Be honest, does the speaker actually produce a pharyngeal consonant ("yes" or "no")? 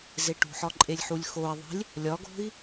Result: yes